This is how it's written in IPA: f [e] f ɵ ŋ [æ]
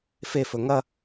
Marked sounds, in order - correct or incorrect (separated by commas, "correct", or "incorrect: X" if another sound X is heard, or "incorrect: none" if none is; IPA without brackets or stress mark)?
correct, incorrect: ɐ